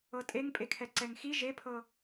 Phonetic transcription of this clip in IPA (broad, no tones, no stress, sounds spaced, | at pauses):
ɤ tʼ e ŋ pʼ e kʰ ɛ ǀ ɛ ŋ x i ʒ e pʰ ɤ